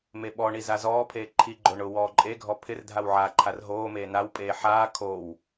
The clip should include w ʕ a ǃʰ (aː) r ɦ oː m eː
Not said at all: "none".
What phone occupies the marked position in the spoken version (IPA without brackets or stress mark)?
a